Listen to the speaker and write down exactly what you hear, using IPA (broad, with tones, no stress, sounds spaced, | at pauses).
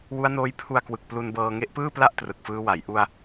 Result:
w u˦˥ a̯ n oː˦˥ j pʰ u˧ a̯ k w ɯ˨˩ k̚ p l u˧ n b ɤː˧ ŋ e˦˥ ʔ p ɯː˥˩ p l a˥˩ ʔ t r ɯ˨˩ k̚ f ɯː˦˥ w a˩˦ j ʔ u˧ a̯